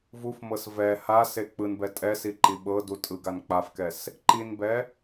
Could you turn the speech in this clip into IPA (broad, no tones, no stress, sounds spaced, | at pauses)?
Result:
v u f m ɤ s v ɛ h a s e k͡p ɯ n b ɛ tʼ ɛ s i ǃ i ɓ ɤ d u tʼ ɯ ɡ a n k͡p a f k ɛ s | ǃ i n b ɛ